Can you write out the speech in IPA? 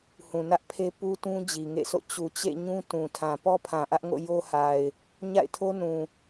h ũ˨ n ä˦ ʔ pʰ e˦ p u˦ t ũ˦ d͡ʑ i˨ ŋ ḛ˦˨ s o̰˦˨ t͡ɕ u˨ t͡ɕ ḛ˦˨ ɲ ũ˦ t ũ˨ tʰ ã˨ p ɔ˦ pʰ ã˨ ʔ ä˦ ʔ ŋ o̰˦˨ j o˦ h a˨ ɪ̯ | ɲ a̰˦˨ ɪ̯ tʰ o˦ n ũ˨

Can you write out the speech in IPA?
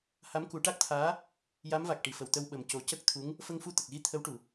h a˧˥ m k u˨˩˦ ʈ a˦˥ k̚ t̪ʰ aː˧˥ | j a˧˥ m v a˨˩ k̚ ʈ i˨˩˨ f ə˨˩˨ w t̪ ə˧ w ɓ ə˨˩ m c o˨˩˦ c ə˦˥ k̚ t̪ʰ u˧˥ ŋ | f ə˧ ŋ f u˧ t̪ ə˨˩ k̚ ɣ i˧ t̪ʰ ə˧˥ w ʈ u˨˩˨

